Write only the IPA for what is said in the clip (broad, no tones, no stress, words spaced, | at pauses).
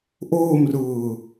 ʔoːmrʊː